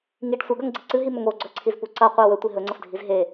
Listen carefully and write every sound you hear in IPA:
ŋ i ɖ sʷ ɐ ɡ ɐ ŋ ɡ͡ǀ ɨ ǀ ɨ ɦ i m ɵ ŋ o ɡ͡ǀ ɵ ǀʰ i z p u ǀ ɐ qʷ e w ɵ tʷ i ɦ ɵ ŋ͡ǀ ɐ f dʱ i z ɦ e

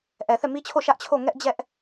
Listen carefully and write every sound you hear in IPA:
ʔ ɛ˨ θ ɛ˦˨ m i˦ t͡ɕʰ o˦˨ ʃ ä˦ ʔ t͡ɕʰ o˦˨ ŋ ɛ˦ ʔ d͡ʑ ɛ˦ ʔ

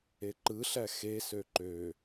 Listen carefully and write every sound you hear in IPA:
e ǃ ɯ ɬ æ x e s ø ǃ ø

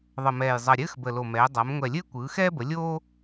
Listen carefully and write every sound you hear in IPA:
ðˤ ə˨˩ m ɛː˨˩ j zˤ ʌ˨˩ ɾʲ ɘː˧˥˧ x b ə˨˩ l o˨˩ m ɛː˩˧ dˤ a˩˧ m ŋʷ ɛ˨˩ lʲ ɘː˥ kʷ ɯː˩˧ x ɛː˥ b ə˩˧ lʲ oː˥

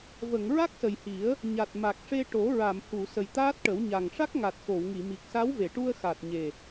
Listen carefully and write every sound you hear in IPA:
v ə˨˩˨ ŋ ɹ a˦˥ k̚ s ə˨˩ j h i˨˩˦ ə̯ | ɲ a˨˩ t̚ m a˨˩ k̚ ʂ e˧ ʈ o˨˩˦ ɹ a˨˩˨ m h u˨˩˨ s ə˨˩ j t̪ aː˦˥ t̚ ʈ ə˨˩˦ w ɲ a˨˩ ŋ ʂ a˦˥ k̚ ŋ a˨˩ t̚ x o˨˩˨ w ŋ i˨˩˨ m i˨˩ k̚ s a˧˥ w v e˨˩˨ ʈ u˧ ə̯ x a˨˩ t̚ ɲ e˨˩

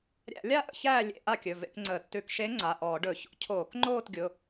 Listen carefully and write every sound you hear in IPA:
ɾʲ æ̰˧˩˧ lʲ a˥˧ ʔ ə̰˧ ç æː˥˧ lʲ ḛ˧˩˧ ʔ a˥˧ kʲ ɵ˩˧˩ v ḛ˥˧ k ŋ͡ǀ əː˧˩˧ tː ʉ˧˩˧ k ʃ e˧˥ ŋ͡ǀ a˩˧˩ ʔ ɔː˧˩˧ ɖ ɵ˧˩˧ ç o̰˧ cʰ oː˧˩˧ k ŋ͡ǃ oː˥˧ t ɡʲ ʊ˩˧˩

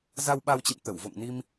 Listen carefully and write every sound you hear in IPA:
z a˧ w ɓ a˧ w t͡ɕ ḭ˧˨ m t̪ ə˧˩ w v o̰˧˨ ŋ n i˧ m

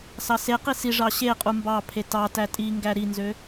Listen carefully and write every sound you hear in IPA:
s ɑ s e q i s i ʐ ɑ ɕ e qʼ u m b ɑ pʰ e t ɑ t æ tʼ i ŋ ɡ æ ɾ i n z ø

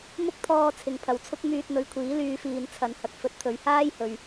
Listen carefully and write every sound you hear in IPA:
m ʊ˥ k̚ t̪ʰ ɔː˧ t͡sʰ ɪ˨ ŋ pʰ ɐ˨ w t͡sʰ ʊ˥ k̚ m yː˧ t̚ n̪ ɵ˨˧ ɥ kʷʰ iː˨˥ l yː˧ f iː˨ n t͡sʰ ɐ˨˧ n h ɐ˨ k̚ f ɵ˨˥ t̚ t̪ʰ ɵ˨˧ ɥ h aː˥ j h ɵ˨ ɥ

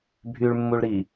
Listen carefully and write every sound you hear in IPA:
bʱ y ɭ mː u ɭ ɾ i

